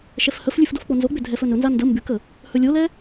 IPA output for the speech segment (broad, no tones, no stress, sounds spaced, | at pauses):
ʃ ɛ f h ə f lʲ ʉ f d o f k͡p o n z o ɡ͡b ʏ dʱ ɛ f ɵ n ɵ n z a n d ə m b ʉ k ə | h ɵ lʲ o l ɛ